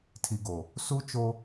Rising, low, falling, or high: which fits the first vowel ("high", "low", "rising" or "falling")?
low